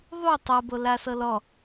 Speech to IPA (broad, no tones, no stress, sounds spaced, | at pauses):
ðˤ u tˤ ɤ b o l a s ɤ l ɔ